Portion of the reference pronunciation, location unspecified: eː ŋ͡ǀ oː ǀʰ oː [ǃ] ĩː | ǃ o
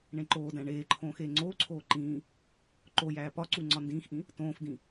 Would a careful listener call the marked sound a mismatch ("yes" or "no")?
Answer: no